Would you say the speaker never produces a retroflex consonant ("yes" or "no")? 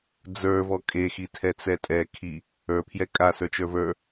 yes